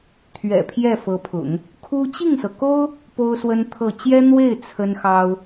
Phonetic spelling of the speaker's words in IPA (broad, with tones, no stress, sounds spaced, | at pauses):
t̪ʰ ɥ ɛ̰˨˩ pʰ j ɛ˥˩ f ɤ˧˥ pʰ ʊ̰˨˩˦ ŋ | kʰ u˥ t͡ɕ i˥˩ ŋ s ɤ˩ k o˥ ʊ̯ | p o˥ ʊ̯ s w ə˥ n t̪ʰ ɤ˥˩ t͡ɕ j ɛ˥ n̪ w e˥˩ ɪ̯ t͡sʰ ə˥ n x ɑ˥ ʊ̯